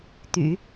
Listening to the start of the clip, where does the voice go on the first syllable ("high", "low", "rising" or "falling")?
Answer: low